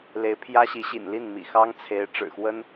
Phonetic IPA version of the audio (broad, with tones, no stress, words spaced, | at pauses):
le˧˥ɪ̯pʰjä˥ ɕi˧˥ɕḭ˨˩nli˥˩n mḭ˨˩xɑ˥ŋt͡sʰe˧˥ɪ̯ ʈ͡ʂɻ̩˨˩xwə˥n